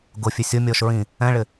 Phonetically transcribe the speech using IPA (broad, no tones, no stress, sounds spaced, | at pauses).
ɡ ʊ fʲ e sʲ o mʲ ɔː ʃ ɹ ĩ | ɛ̃ ɭ ɪ